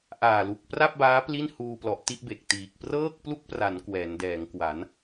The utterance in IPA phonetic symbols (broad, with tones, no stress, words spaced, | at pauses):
ʔaː˨˩lu˨˩k̚ pra˥˩p̚ baː˦˥pli˥˩nhuː˧plɔ˨˩ʔ ti˥˩ʔbe˨˩k̚tiː˨˩k̚ prɤː˥˩k̚plu˥˩k̚pra˩˦n kwɛː˩˦ndɛː˩˦ŋkwa˩˦n